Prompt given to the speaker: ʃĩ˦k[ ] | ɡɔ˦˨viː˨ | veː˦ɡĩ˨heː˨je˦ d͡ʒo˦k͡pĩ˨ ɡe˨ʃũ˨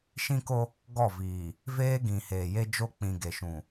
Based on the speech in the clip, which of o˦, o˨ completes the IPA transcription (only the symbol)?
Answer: o˦